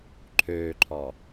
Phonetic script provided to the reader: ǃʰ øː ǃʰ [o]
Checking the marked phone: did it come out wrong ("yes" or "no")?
yes